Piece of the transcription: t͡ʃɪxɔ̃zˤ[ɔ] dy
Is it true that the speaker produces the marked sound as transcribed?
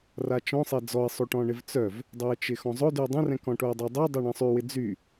no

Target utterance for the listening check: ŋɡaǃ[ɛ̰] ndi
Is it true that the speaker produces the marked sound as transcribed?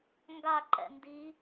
yes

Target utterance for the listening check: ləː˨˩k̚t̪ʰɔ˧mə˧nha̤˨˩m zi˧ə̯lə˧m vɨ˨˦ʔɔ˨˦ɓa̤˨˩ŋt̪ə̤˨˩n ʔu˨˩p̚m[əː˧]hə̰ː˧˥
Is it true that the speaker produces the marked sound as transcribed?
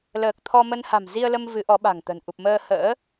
yes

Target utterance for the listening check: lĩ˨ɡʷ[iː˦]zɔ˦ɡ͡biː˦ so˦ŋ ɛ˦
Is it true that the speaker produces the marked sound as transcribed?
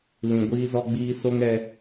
yes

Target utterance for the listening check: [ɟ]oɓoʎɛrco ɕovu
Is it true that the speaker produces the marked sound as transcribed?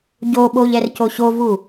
yes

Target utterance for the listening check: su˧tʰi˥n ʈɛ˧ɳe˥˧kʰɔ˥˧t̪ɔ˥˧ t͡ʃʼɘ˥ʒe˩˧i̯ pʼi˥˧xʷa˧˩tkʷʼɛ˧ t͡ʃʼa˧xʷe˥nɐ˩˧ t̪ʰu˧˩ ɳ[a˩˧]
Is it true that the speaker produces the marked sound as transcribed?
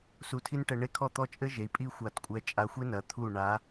yes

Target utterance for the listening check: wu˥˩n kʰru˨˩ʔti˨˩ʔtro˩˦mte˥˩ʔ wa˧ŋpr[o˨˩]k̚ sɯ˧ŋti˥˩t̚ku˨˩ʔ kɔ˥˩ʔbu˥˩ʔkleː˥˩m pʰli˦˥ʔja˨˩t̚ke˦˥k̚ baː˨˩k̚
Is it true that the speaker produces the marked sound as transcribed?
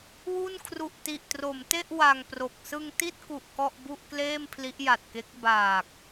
yes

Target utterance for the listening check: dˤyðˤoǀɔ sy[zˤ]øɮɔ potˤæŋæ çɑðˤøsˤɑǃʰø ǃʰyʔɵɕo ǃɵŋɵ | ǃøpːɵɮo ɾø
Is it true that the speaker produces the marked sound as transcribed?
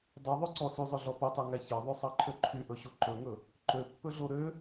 yes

